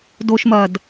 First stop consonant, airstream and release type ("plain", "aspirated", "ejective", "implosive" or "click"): plain